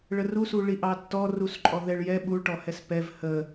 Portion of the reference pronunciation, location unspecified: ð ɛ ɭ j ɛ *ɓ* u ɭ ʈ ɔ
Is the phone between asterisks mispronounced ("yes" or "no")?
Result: no